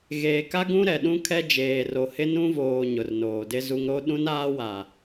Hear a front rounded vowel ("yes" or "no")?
no